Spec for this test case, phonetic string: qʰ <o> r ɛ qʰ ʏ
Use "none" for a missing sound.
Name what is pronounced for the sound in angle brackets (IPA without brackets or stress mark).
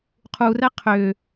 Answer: u